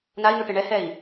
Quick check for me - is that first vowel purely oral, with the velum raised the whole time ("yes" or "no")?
yes